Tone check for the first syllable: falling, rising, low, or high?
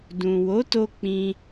low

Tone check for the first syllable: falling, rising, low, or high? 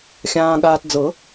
low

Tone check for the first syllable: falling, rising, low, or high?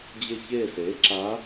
falling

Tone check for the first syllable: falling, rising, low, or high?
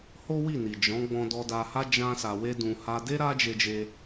high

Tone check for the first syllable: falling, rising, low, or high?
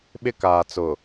high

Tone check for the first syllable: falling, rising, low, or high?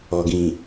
low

